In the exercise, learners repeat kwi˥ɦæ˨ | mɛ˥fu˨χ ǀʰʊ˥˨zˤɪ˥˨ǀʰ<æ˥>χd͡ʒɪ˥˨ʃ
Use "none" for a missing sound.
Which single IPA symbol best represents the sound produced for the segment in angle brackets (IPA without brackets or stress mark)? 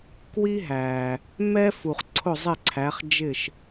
æ˨˦